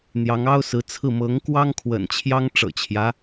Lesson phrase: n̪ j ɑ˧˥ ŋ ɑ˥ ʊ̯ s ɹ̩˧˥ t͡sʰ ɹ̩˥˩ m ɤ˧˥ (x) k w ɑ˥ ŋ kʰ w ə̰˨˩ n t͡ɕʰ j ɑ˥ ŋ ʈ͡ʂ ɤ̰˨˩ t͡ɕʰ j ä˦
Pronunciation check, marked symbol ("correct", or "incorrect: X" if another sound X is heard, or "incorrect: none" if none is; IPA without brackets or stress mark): incorrect: ŋ